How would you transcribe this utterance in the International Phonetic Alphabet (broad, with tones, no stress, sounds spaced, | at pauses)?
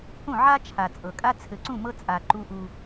h ũ˦˨ ʕ a˦ t͡ʃʰ a˨ t͡sʼ ɤ˨ kʼ a˦ t͡sʰ ɘ˨ ǀ ũ˦˨ m ɤ˦ t͡sʼ a˨ ǃ u˦ ʔ u˦